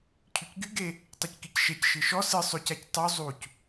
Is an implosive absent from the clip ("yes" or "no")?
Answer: yes